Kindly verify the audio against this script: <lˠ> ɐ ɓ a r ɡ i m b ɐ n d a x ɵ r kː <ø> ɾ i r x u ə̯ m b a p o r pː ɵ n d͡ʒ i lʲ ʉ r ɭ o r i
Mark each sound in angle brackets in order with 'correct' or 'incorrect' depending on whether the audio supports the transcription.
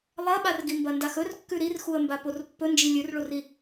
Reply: correct, incorrect: ʉ

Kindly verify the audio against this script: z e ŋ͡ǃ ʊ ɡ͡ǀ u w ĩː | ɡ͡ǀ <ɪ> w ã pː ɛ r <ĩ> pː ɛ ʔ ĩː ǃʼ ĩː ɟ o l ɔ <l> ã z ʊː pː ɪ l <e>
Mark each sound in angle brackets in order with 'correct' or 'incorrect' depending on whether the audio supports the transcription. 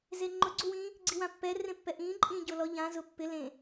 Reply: incorrect: i, incorrect: ẽ, incorrect: ʎ, incorrect: ẽ

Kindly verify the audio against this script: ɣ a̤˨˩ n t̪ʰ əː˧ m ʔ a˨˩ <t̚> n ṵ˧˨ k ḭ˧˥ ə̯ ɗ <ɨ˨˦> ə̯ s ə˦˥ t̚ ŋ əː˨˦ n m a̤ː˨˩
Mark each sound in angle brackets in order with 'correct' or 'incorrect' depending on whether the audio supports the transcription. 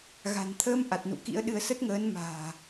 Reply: correct, correct

